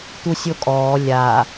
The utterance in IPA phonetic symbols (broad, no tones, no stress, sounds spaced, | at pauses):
t̪ u sʲ o kʼ ɔː lʲ a